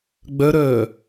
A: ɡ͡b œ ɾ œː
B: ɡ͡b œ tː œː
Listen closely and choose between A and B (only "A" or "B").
A